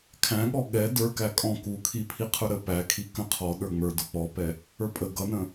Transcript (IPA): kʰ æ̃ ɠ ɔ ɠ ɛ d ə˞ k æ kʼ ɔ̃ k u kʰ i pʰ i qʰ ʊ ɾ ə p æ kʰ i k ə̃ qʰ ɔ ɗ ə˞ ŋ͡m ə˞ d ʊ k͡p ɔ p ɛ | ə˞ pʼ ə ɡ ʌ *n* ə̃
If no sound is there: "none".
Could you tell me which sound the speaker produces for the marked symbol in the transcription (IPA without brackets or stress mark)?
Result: n